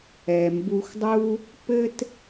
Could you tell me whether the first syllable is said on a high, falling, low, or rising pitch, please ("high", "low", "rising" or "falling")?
low